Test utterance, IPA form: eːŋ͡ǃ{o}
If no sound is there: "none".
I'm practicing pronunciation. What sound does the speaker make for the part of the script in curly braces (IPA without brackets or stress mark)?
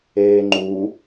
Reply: u